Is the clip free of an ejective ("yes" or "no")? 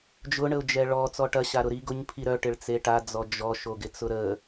yes